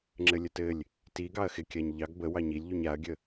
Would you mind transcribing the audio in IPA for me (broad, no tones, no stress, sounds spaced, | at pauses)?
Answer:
ŋ͡ǁ ɘ lʲ ə t ɘ lʲ | t i ɡ ɑ ɐ̯ x ɪ kʲ a ɲ ʎ ɑ ɡ b ə w ɑ ɲ i lʲ ʎ u ɲ a ɐ̯ ɡʲ ə